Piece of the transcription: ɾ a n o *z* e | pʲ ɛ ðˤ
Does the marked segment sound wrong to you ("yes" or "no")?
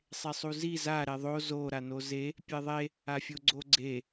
no